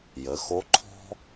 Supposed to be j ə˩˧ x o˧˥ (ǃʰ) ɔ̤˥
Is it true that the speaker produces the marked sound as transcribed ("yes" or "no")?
yes